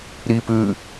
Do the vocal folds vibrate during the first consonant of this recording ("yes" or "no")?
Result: yes